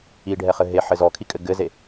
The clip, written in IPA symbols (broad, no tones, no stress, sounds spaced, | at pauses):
i ɖʱ ɛ χ ɘ ɦ e ħ ɘ z ɔ kʰ i kʼ ɘ ɡ ɘ z e